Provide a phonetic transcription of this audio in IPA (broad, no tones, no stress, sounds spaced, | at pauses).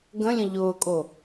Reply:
ɡ ə̃ lʲ ə̃ ʎ ʊː kʼ o